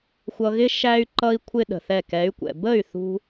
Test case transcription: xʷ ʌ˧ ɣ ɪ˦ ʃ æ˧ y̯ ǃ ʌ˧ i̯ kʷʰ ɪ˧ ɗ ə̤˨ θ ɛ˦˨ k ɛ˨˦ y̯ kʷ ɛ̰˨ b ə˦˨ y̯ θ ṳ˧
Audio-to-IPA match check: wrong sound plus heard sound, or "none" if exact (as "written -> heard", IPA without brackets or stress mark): none